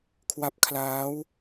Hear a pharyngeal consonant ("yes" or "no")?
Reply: no